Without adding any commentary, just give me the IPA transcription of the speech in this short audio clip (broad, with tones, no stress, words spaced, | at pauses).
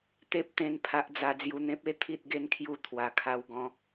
t̪e˦p̚t̪ẽ˧n pʰa˦ʔd͡za˧ d͡zju˧n̪ẽ˦p̚e˥˧ t̪ʰi˦t̚ɡe˦nkʰju˧ t̪ʰwa˨˩kʰa˧wɡɔ̃˧